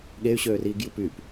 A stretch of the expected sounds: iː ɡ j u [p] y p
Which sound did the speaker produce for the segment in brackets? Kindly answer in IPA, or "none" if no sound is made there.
p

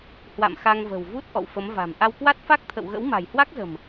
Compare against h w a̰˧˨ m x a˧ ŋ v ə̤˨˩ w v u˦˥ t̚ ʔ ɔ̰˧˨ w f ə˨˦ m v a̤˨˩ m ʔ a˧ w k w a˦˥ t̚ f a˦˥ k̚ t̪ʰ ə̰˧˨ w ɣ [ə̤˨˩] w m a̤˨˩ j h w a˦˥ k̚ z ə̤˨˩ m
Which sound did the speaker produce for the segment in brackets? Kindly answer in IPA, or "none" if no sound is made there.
ə̰˧˥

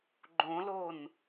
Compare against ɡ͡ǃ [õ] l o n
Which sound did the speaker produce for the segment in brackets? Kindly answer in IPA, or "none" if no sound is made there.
õ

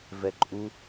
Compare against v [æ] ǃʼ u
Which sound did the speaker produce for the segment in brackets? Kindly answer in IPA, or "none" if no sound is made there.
ɛ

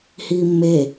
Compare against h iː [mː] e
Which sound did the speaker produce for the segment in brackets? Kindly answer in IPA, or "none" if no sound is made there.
mː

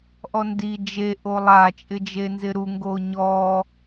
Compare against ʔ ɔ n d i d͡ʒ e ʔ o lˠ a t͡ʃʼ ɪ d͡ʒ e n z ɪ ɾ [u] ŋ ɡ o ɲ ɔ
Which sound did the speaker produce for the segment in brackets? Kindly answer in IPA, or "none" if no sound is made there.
u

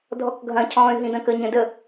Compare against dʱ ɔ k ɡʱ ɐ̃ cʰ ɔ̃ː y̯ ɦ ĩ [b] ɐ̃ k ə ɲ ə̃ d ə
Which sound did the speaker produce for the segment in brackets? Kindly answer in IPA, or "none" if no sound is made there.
d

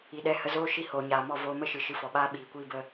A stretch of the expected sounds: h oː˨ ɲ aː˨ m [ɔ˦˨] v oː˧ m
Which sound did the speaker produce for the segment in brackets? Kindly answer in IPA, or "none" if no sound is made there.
ɔ˦˨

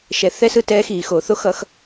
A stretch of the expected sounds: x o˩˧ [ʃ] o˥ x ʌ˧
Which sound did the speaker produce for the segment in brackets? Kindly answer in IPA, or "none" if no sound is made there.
θ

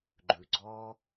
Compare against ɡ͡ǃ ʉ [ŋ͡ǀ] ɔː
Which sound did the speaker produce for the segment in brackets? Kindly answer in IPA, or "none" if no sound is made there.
ɡ͡ǀ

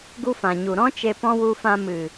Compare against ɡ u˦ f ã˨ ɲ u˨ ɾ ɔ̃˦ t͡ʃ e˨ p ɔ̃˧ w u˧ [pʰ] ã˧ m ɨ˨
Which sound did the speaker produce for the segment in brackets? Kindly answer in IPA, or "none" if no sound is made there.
f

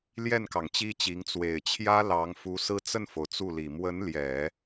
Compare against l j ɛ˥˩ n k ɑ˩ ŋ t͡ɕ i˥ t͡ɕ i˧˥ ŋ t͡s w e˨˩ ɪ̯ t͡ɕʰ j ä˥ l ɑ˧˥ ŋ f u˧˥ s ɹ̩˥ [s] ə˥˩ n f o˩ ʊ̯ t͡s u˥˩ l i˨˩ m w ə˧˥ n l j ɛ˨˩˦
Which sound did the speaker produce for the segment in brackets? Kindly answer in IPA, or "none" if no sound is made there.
t͡s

